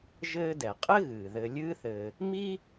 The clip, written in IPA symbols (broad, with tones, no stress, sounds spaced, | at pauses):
ʒ ɘː˦ d ɛ˩ qʼ ɘ˥ ɣ ɨː˩ ð ɘ˨ lʲ ɨː˦ θ ɘː˨ | m i˥